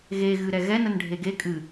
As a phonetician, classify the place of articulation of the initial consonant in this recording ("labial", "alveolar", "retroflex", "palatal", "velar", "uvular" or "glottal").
velar